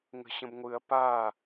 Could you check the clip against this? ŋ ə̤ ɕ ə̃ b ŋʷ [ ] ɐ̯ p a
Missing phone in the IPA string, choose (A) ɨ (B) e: A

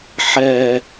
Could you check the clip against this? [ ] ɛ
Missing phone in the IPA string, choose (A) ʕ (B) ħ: B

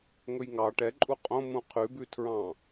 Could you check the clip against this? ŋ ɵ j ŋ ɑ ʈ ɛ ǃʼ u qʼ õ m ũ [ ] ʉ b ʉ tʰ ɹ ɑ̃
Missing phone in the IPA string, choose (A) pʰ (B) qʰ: B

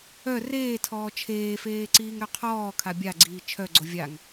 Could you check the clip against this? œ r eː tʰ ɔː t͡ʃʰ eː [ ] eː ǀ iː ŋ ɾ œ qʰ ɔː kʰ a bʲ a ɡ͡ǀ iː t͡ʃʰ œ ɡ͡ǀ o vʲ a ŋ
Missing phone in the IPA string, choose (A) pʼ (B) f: B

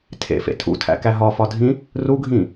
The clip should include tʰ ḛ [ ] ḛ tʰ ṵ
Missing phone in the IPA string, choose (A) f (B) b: A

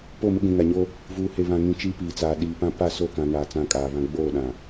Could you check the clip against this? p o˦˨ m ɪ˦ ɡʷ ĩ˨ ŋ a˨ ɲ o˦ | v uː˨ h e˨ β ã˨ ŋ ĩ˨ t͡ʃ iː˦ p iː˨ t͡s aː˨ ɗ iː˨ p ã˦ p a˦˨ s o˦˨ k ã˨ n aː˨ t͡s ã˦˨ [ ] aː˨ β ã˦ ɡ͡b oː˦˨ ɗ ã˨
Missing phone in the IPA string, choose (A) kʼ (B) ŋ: A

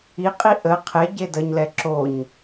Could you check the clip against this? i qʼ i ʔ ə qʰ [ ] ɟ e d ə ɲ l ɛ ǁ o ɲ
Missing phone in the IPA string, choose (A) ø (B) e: B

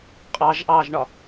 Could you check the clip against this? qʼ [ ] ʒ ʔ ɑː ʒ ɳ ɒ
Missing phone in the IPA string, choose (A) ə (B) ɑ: B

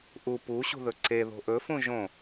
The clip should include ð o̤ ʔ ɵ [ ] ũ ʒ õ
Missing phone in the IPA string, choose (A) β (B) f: B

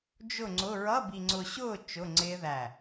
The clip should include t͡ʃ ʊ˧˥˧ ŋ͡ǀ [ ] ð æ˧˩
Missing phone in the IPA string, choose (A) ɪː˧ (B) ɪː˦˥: B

